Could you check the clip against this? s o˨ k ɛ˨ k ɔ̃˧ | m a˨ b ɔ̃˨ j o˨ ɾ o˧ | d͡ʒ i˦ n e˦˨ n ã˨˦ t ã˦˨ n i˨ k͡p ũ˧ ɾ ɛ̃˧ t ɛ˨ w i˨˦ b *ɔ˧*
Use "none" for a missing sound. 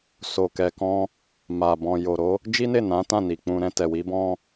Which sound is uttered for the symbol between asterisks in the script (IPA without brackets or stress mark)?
ɔ̃˧